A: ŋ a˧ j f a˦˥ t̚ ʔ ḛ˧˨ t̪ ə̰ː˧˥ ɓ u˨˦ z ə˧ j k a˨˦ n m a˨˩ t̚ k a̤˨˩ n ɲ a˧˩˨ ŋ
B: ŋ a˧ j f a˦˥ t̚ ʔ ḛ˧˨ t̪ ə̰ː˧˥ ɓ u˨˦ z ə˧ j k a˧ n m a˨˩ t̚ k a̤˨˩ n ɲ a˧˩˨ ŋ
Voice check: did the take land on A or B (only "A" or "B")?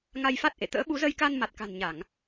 B